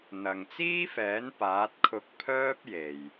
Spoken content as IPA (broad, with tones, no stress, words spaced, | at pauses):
n̪ɐ˨ŋ t͡siː˥fɛː˨˥n paː˨˥t̚kʰʊ˧k̚ pʰœː˥p̚je˨j